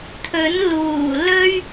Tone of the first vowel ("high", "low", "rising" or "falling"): rising